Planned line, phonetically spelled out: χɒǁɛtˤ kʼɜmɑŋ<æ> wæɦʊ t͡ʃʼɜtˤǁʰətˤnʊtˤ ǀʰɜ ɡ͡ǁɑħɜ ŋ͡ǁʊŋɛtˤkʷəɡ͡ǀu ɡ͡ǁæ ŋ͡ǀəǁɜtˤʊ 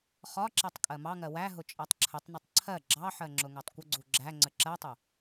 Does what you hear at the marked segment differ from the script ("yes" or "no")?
yes